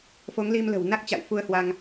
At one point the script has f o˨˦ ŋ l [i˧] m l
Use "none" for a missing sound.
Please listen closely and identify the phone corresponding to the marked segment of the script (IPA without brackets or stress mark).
i˧